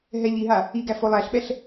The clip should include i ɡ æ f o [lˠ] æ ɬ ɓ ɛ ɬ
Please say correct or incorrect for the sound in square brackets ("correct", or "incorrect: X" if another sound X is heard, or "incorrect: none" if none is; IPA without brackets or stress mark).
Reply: correct